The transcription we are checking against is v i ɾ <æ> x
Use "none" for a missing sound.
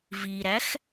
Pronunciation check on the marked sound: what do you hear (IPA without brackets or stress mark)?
æ